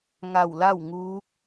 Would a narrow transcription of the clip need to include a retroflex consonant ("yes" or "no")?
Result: no